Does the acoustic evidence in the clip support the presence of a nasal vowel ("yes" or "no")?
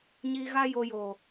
no